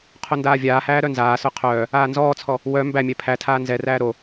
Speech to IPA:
qʰondaːvʲaːhæː ɾœnzaːsœ qʰœː | aːnzɔːt͡sʰɔ | wœ mbæmʲɛ pʰætʰaː nzɛræː ɾo

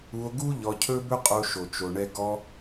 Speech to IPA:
u˧o̯ɡu˦ ʎɔ˧cʰɵ˦bɵ˦qʼo˧ ʃo˨t͡ʃo˨ɳɛ˧ ɡɔ˧

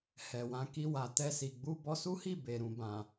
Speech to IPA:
hɛ˨wã˧ki˧ wa˨ tɛ˧si˨ ɡ͡bu˧bɔ˧su˦hi˦˨ be˨ɾũ˨bã˨

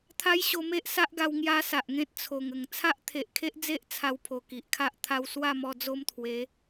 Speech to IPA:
t̪ʰa˦jɕo˧me˦ʔ sa˦ʔɡa˧w ŋja˦sa˨ʔŋẽ˦t̚ t͡sʰo˨˩ŋə˨˩ŋ t͡sʰa˦ʔt̪ʰe˨ʔkʰe˦ʔd͡ze˦ʔ t͡sʰa˧wpʰo˨˩ ki˨ʔkʰa˦ʔ t̪ʰa˧wswa˥˧mɔ˧ d͡zo˦mt̪ʰwe˨˦

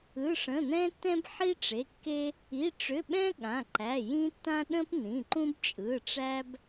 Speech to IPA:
ɯ˩˧˩ʂə̃˩˧˩n̪ɛ̃˦tːɛ̃˦b ħi˦ʈ͡ʂe˩˧˩kːe˦ | i˩˧˩ʈ͡ʂʏ˩˧˩ɓɛ̃˦ ɠã˩˧˩ǃæ˩˧˩jĩ˦tːã˦ ɗə̃˦pn̪ĩ˩˧˩ǃũ˦b t͡ʃʼɯ˩˧˩ʈ͡ʂæ˦b

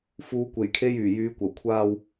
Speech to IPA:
fuː˨˧kʷe˨˩jkʰe˧j yː˨˩jyː˨˧kʷɐ˨˩w kʷʰaː˨w

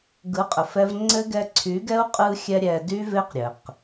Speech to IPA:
ɡɯ˨˦qʼə˨ fɛ˦v ŋ͡ǀɘ˦ ɡɛ˧ǀʰy˨˦ɡɛ˦u̯ qʼɯ˧xʲɛ˧ ɾʲɛ˧dy˦ve˦qɾʲɘ˨q

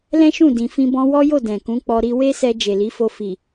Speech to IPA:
lɛ̃˦ʃũ˦˨dĩ˨fĩ˧ bɔ̃˧wɔ˦jo˦˨ dɛ̃˨kũ˨˦k͡pɔ˧ ɾi˧we˦sɛ˧ d͡ʒe˨li˨˦fo˧ fi˨

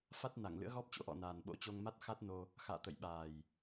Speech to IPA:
fa˦˥t̚ na˧˩ŋlɨ̰˧˥ə̯ɣɔ˦˥p̚t͡ɕo̰˧˥ ʔɔ̰˧˨naː˨˩nɓo̰˧˥t͡ɕo˧ŋ ma˦˥t̚xa˦˥t̚no˧ | xa̰ː˧˨t̪ə̰˧˨j ɓaː˨˩j

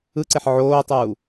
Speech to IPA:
ɯǀeħ ʕoːtˤuː

